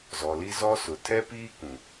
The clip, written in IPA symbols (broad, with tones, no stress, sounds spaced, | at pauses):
z ɔ˨ l i˦ z ɔ˦ s ʊ˨ tʰ ɛ˦ p iː˦ k ũ˨